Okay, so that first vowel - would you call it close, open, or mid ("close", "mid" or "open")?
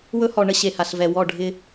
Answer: mid